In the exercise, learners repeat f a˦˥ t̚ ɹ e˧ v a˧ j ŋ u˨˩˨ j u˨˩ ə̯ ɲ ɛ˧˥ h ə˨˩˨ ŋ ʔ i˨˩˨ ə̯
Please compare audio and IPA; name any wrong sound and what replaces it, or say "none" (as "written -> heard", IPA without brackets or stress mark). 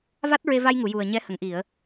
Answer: f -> v